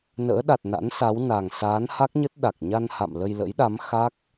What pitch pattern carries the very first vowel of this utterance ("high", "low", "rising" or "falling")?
rising